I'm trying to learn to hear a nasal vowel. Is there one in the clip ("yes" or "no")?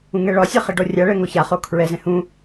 yes